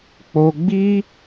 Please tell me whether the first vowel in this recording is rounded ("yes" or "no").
yes